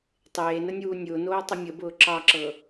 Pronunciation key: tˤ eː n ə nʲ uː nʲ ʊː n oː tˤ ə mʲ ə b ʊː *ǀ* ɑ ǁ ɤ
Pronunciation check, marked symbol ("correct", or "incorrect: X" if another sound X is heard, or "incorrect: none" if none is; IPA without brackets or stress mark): incorrect: ǁ